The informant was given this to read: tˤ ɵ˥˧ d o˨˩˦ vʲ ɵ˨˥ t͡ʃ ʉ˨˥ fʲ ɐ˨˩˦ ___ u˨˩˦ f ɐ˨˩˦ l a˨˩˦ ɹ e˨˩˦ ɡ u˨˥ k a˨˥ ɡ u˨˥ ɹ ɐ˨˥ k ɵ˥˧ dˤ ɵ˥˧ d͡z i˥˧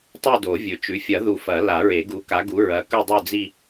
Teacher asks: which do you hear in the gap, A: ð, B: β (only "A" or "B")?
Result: A